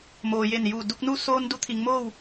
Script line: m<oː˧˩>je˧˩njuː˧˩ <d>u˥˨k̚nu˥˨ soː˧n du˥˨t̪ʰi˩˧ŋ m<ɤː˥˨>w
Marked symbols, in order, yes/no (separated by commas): no, yes, no